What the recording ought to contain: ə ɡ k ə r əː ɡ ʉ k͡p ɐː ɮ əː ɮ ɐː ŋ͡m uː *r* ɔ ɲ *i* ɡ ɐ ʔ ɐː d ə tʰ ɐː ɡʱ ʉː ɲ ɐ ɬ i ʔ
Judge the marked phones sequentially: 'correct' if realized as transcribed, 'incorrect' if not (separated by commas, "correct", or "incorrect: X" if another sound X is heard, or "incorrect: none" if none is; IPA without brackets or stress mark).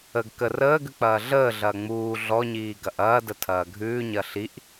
incorrect: ɮ, incorrect: iː